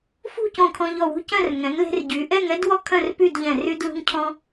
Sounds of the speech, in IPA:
f ṳ˥˧ c õ˧˩ kʰ ɔ̃˧ ʎ ɔ˧˩ w ṳ˥˧ c œ̃˥˧ r ŋ ɛ̃˩˧ ŋ l e̤˧ r ɟ y˩˧ ʔ ɛ˥˧ ŋ ɛ˥ d w ɔ˥˧ kʰ œ̃˥˧ r p y˥˧ d ʎ ɛ̃˧˩ r y˧ d l ṳ˧ ŋ cʰ ɔ̃˧

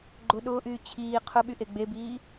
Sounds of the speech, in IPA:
ɡ͡ǃ ʊ ɗ ʊː ʔ yː t͡ɕʰ iː qʰ ʊ ɓ y ʔ e ɡ͡b e b iː

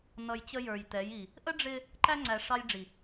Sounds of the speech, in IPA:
n ʌ˨ j t͡ɕ ə˦ j ə˞˨ j t ɛ˨˦ j i˨ | ʔ ə˦ ɖ͡ʐ ɪ˦ | ǃ æ˦ ŋ͡ǀ æ˨ ʂ ɑ˦ j ɖ͡ʐ i˨

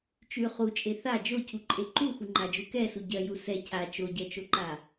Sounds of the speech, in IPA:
t͡ʃ ʉ χ u t͡ʃʼ e θ a d͡ʒ o cʰ u ǃʼ e ǃ u x u ŋ͡ǃ a d͡ʒ u k ɛ s u ɟ ɜ j u s ɛ cʰ a t͡ʃ o ɟ ɜ t͡ʃ o ǃ a

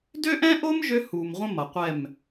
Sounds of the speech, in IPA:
d ø˦ ʔ ɛ̃˦ ʔ o˦ m ʒ ø˦ h u˨ m ʁʷ ə̃˦ m ʌ˨ qʷ ɛ˦˨ m

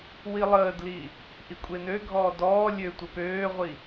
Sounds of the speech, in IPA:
w i lˠ əː d l i | ʔ i kʷʼ e n ø ɡʱ ɔː d ɔː lʲ ø tʷ ə p øː ʁʷ i

